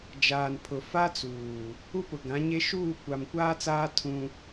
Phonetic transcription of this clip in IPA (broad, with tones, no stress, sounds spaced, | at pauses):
d͡ʒ aː˨ n pʰ ʊ˨ f a˦ t͡s uː˨ | u˦ p ʊ˨ ɡ ã˨˦ ɲ e˦ ʃ uː˦˨ kʷ a˨ m kʷ aː˦ t͡s aː˦ tʰ ũ˦